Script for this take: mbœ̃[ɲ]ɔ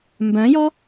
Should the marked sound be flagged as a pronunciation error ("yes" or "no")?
yes